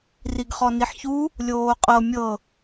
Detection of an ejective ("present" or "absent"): present